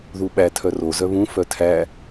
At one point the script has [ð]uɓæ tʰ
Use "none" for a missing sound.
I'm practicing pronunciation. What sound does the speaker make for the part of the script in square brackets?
ð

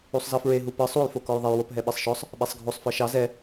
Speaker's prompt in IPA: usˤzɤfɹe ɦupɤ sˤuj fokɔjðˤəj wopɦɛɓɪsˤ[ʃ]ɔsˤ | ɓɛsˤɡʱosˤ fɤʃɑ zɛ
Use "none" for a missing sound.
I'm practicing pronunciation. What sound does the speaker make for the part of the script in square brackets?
ʃ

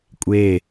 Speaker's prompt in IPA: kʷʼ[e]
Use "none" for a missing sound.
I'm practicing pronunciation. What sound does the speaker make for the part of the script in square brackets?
e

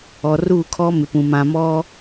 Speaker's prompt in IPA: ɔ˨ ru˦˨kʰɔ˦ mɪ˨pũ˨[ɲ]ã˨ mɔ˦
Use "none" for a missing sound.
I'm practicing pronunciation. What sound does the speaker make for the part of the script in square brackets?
m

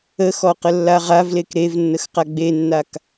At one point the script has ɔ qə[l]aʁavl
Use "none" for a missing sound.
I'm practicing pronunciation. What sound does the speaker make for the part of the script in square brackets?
lː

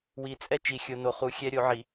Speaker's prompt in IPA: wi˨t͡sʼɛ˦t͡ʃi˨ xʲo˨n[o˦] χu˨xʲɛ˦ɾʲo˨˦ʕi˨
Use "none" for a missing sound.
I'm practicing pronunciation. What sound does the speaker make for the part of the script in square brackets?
o˨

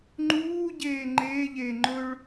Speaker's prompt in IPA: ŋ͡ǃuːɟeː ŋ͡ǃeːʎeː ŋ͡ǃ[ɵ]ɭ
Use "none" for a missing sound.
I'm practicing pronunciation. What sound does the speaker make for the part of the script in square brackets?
ɵ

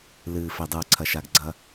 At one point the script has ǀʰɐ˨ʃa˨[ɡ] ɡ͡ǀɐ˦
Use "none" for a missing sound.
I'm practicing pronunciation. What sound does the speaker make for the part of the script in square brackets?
ɡ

